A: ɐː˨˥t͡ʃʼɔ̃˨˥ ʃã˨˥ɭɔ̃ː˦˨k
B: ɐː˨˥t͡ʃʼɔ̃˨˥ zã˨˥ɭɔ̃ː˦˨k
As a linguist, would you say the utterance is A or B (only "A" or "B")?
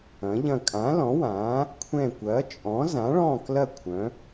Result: B